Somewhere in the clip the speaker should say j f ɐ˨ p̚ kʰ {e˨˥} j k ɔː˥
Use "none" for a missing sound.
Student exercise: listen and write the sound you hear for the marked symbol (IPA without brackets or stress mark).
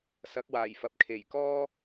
e˨˩